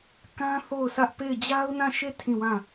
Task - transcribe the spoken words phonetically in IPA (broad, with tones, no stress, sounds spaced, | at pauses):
k ã˦ θ o˦˨ ʊ̯ sʰ ä˦ ʔ p e˦˨ ɪ̯ d͡ʑ a˦ ʊ̯ n ã˦˨ ʃ e˦˨ tʰ ĩ˦˨ w ã˦˨